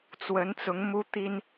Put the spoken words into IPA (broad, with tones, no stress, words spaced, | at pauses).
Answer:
t͡swə˨˦nt͡sʊ˨˦ŋ mu˦t̪i˦n